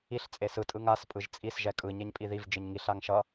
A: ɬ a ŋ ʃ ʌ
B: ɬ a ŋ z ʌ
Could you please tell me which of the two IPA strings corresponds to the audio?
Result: A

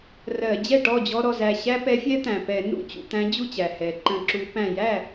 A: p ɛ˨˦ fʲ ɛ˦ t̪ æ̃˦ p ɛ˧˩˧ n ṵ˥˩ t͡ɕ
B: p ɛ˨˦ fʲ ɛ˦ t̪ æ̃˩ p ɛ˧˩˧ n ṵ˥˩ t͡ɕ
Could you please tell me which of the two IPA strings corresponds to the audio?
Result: B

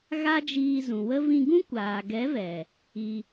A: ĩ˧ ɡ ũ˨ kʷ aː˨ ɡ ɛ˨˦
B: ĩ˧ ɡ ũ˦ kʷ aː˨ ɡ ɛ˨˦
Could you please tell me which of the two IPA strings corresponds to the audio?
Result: B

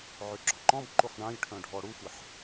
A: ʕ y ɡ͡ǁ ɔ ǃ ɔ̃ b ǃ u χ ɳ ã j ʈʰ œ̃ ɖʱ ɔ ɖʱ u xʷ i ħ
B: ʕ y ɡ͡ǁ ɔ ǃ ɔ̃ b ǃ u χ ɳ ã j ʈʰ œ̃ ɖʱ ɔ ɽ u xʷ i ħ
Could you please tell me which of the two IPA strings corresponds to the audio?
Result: B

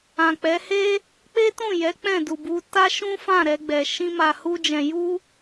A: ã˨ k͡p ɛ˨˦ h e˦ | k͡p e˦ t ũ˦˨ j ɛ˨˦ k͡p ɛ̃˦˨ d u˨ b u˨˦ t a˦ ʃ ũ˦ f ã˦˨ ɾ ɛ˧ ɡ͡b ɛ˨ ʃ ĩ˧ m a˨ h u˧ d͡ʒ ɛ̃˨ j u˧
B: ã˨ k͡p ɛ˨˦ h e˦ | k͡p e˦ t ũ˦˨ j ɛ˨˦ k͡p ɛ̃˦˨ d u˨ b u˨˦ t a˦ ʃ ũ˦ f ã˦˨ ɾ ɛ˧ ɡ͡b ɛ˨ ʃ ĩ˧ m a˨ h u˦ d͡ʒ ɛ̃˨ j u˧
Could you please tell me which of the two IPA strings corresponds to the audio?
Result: A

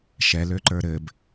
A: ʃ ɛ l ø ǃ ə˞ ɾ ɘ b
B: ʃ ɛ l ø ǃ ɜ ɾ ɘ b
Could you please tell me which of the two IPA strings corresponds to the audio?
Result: A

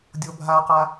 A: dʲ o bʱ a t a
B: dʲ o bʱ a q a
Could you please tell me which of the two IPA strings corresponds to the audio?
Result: B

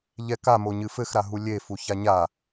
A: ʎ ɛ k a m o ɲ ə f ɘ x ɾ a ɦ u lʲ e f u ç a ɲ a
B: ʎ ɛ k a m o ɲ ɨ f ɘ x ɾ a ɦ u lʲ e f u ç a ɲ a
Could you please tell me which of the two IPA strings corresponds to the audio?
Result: B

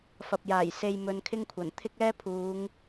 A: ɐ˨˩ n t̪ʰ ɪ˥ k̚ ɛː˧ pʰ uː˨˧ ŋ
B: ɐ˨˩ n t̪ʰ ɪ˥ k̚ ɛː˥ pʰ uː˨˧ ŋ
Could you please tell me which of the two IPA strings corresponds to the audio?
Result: B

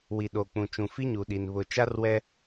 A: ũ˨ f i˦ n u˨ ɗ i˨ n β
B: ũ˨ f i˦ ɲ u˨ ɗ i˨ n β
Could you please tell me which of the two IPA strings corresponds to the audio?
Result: B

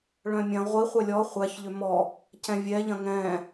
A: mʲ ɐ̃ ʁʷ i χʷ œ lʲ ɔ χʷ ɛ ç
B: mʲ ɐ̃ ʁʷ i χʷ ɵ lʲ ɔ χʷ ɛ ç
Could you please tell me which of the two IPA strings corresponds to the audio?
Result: A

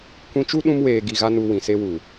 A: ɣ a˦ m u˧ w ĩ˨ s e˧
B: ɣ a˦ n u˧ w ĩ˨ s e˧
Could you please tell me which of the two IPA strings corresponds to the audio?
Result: B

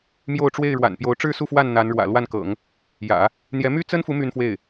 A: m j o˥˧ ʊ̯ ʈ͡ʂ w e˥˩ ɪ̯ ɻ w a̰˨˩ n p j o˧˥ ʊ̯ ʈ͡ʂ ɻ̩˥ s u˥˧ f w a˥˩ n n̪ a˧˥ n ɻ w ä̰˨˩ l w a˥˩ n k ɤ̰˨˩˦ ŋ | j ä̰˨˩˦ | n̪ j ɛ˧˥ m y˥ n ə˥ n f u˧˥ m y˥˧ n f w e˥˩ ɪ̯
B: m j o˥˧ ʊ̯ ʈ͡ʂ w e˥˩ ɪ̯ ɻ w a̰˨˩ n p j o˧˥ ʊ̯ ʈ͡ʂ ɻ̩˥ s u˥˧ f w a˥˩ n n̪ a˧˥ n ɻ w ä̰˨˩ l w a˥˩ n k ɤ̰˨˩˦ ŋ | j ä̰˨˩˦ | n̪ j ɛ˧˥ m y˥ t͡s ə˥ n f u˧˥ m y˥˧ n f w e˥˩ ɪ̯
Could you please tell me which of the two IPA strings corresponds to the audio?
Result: B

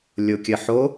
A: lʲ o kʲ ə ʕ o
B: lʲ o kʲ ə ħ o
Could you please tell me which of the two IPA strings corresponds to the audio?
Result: B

